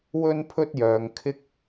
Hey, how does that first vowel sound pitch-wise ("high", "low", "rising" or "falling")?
high